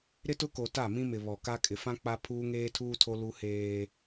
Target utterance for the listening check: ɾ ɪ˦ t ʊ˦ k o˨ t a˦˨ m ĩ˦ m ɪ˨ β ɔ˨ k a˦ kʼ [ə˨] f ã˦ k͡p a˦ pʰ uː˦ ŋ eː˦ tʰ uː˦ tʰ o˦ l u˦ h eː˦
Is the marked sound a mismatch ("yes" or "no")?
yes